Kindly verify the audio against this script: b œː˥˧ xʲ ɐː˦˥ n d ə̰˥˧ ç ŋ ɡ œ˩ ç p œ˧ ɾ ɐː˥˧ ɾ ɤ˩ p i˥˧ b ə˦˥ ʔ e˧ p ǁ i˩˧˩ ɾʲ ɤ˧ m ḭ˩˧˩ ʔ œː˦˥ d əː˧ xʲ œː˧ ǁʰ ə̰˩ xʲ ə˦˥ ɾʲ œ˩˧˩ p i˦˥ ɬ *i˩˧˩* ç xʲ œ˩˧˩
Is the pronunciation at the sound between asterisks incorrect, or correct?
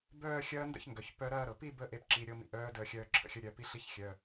incorrect